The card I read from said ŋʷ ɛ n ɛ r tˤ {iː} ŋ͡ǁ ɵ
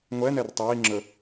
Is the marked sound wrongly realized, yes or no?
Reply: no